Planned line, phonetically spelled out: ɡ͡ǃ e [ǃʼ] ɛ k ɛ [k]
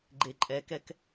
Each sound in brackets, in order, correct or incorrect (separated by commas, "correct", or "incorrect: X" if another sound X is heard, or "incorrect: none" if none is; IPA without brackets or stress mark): correct, correct